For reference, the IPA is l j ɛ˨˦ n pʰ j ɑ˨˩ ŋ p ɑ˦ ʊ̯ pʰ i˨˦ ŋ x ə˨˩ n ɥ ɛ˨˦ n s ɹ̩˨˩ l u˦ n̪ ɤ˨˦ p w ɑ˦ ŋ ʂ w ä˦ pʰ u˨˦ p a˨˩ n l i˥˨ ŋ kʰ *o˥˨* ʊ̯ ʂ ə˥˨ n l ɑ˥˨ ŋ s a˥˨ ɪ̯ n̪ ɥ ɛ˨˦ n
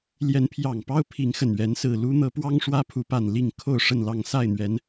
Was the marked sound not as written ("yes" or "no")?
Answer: no